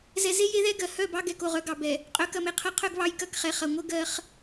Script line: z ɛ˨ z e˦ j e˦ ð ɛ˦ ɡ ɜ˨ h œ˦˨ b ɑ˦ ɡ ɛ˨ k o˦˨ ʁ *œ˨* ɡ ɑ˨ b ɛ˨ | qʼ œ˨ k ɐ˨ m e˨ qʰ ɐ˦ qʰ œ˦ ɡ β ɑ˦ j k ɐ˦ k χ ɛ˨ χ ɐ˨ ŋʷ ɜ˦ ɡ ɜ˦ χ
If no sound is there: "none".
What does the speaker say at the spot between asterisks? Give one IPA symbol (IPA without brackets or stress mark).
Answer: œ˦